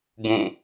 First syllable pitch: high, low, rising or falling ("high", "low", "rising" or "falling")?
falling